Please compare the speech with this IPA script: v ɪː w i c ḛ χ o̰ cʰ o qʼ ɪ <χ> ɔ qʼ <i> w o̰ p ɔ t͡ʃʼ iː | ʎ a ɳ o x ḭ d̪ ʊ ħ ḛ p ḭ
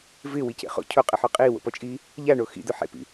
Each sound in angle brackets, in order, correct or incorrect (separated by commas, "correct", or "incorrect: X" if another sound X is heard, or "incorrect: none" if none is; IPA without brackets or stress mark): incorrect: ħ, incorrect: iː